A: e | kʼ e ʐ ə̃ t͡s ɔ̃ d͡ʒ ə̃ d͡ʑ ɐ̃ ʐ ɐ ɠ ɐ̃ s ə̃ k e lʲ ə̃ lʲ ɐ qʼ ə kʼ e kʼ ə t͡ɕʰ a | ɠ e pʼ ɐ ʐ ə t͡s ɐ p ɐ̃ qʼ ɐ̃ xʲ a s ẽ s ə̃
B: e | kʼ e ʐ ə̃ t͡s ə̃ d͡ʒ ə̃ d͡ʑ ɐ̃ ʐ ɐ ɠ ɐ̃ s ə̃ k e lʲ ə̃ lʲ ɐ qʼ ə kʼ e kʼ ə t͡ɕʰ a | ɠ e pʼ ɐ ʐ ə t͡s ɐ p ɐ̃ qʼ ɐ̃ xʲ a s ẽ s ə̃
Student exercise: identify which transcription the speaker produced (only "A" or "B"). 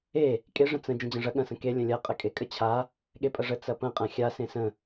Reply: B